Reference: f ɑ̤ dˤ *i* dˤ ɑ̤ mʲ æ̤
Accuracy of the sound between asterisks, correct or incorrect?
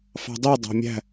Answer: correct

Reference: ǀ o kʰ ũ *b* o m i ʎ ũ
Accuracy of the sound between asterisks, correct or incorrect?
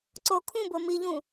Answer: correct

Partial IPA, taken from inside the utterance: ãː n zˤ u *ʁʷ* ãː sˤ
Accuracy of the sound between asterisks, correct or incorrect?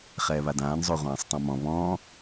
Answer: correct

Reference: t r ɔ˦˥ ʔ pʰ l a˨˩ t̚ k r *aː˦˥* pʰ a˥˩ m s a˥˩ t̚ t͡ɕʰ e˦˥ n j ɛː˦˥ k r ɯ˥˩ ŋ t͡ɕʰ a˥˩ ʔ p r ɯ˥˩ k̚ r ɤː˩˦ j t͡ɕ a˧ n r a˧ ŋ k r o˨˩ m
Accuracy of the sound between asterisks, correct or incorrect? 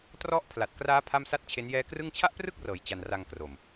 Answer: correct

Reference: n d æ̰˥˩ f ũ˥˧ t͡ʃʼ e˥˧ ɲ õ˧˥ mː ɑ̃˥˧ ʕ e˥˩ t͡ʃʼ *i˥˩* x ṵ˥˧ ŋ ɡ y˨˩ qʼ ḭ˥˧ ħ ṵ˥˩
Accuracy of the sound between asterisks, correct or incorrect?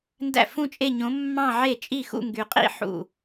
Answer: correct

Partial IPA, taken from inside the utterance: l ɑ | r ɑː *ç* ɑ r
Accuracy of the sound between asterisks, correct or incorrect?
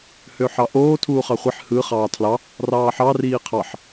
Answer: incorrect: ħ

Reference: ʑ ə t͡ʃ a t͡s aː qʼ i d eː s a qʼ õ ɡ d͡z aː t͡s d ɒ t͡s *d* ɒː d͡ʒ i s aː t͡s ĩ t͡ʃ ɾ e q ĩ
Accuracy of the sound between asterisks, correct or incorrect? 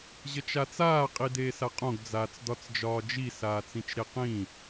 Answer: incorrect: d͡ʒ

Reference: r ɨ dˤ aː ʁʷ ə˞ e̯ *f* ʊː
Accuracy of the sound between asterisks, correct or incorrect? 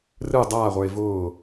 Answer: incorrect: v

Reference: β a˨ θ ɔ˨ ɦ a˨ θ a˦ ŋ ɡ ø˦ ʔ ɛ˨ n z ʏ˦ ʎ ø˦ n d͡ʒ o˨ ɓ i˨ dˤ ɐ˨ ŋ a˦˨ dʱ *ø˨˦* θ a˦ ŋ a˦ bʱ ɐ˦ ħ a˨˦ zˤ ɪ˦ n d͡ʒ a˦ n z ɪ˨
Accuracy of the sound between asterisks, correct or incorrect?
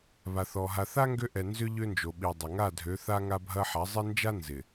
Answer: correct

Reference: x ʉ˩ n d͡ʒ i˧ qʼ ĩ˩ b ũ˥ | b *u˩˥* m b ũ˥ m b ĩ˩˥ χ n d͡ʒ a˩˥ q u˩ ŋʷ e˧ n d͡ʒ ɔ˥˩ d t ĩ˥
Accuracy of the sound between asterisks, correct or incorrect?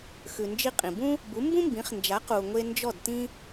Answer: correct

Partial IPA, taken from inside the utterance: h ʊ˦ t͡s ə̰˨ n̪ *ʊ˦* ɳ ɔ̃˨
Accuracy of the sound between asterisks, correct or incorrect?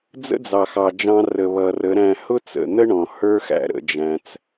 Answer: incorrect: ə˦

